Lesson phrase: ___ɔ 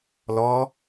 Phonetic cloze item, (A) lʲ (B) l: B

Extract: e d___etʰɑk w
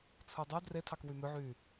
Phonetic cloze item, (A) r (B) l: A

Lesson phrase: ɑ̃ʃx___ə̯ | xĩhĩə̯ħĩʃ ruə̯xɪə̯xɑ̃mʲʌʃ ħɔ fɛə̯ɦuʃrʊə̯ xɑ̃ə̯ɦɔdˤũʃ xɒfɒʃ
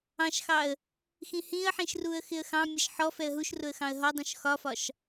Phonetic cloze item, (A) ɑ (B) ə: A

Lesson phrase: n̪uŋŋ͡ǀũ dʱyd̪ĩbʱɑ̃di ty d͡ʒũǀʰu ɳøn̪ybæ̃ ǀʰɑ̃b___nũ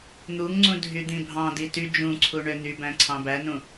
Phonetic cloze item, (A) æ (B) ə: A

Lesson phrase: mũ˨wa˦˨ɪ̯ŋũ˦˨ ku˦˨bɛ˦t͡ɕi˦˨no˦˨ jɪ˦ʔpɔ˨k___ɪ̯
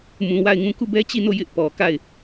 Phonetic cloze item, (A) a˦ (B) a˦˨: B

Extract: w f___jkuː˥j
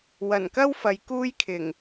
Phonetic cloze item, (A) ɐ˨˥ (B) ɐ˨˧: B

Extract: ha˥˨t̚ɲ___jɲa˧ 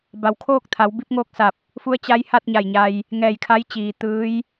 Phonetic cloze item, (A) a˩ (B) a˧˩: B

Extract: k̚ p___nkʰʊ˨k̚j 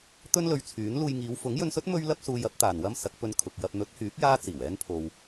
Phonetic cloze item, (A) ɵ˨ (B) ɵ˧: B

